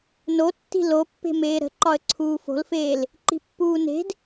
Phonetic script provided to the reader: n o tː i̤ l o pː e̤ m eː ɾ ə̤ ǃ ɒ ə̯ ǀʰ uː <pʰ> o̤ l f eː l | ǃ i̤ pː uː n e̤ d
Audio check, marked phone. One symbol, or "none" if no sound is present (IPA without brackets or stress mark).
f